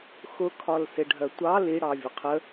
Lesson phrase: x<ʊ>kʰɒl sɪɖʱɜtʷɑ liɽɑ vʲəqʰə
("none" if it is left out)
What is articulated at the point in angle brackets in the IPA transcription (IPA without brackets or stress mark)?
ʊ